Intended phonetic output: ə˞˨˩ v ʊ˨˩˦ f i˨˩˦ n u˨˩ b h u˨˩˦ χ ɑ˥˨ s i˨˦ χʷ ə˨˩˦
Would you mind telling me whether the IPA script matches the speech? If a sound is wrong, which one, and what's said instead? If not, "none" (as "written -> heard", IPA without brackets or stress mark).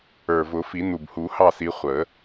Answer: χ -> h